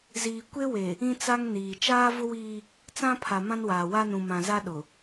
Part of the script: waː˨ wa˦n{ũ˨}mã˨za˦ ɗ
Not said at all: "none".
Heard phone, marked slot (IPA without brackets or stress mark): ũ˨